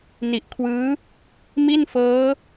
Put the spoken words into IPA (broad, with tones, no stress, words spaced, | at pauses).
ni˨˩ʔkʰwɯː˦˥ | mi˥˩nfɤː˦˥